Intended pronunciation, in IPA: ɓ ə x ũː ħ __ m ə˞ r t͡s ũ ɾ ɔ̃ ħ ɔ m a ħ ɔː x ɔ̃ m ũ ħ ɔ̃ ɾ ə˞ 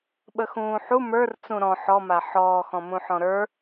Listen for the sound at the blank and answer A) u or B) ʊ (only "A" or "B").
A